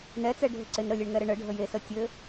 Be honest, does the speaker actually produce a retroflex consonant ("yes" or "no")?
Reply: yes